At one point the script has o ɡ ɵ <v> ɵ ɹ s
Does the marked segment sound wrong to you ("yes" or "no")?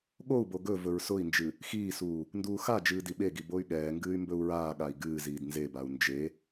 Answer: no